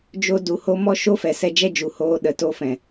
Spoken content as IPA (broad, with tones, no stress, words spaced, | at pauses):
d͡ʒo˦ du˨ho˧mɔ˧ ʃo˦fɛ˨sɛ˧ d͡ʒɛ˦d͡ʒu˨hoː˧ ɗə˨ to˧fɛ̃˨